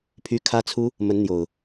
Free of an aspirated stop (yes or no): no